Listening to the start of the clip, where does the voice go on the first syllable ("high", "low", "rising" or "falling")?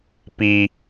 high